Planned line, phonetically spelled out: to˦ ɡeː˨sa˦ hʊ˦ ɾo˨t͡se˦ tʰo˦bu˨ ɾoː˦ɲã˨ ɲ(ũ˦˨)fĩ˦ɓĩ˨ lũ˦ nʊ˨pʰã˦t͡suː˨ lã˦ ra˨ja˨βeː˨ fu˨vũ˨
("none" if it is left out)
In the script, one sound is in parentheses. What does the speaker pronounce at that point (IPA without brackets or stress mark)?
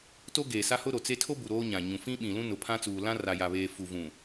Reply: ũ˨